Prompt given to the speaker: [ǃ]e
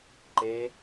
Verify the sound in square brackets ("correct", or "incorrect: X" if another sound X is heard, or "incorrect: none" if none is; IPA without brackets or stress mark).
correct